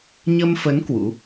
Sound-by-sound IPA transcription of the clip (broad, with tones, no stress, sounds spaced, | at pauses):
ɲ ə˧ m f ə˨˦ n k w ṵ˧˥